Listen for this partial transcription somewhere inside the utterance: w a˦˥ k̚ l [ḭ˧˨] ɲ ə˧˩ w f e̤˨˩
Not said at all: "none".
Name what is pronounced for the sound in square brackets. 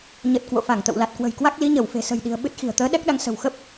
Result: i˨˦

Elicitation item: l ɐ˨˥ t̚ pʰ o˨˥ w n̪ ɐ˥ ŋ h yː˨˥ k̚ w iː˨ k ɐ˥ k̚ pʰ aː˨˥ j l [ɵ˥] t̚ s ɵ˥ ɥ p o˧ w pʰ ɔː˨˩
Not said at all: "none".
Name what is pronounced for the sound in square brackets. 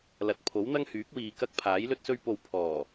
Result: ɵ˥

